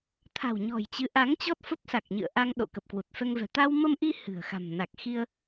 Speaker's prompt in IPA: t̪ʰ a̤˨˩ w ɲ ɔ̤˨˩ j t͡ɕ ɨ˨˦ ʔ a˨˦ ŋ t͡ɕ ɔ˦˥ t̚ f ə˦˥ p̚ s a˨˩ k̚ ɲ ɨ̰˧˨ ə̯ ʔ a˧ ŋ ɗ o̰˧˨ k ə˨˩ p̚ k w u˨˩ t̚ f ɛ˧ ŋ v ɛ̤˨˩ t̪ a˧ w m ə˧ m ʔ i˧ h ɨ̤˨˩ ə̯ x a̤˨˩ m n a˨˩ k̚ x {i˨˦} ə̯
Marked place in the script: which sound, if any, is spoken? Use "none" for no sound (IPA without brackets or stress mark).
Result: i˧